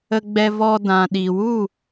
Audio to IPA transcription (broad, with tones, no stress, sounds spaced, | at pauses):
ə˦ ɡ͡b ɛ˦ v ɔ˧ d ã˨ ɗ i˨ w u˦˨